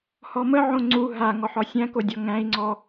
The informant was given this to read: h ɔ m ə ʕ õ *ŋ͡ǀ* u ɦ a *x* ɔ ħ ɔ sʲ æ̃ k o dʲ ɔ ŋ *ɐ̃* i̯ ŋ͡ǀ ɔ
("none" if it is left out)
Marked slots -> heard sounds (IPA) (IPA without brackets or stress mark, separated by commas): ŋ͡ǀ, ŋ, æ̃